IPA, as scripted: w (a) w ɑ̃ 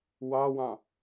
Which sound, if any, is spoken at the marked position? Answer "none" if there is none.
ɑ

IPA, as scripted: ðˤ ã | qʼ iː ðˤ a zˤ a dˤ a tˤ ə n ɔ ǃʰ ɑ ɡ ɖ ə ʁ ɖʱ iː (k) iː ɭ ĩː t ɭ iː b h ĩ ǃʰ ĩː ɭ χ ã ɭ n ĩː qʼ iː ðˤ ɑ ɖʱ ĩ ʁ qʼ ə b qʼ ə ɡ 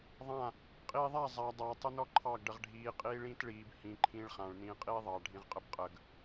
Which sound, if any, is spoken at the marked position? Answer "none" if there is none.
qʼ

